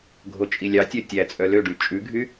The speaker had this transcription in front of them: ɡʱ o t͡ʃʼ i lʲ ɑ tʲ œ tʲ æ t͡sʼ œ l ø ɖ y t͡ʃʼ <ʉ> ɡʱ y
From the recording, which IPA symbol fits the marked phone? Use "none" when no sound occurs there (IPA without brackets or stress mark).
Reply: ʉ